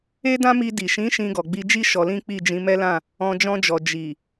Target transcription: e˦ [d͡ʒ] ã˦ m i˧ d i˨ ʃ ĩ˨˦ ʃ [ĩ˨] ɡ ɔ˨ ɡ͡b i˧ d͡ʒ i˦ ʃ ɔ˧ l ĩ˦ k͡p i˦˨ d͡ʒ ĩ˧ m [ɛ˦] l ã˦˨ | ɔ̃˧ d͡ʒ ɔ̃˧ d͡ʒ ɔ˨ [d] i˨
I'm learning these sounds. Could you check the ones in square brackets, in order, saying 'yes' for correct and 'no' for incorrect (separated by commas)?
no, no, yes, no